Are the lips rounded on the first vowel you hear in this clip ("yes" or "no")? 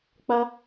no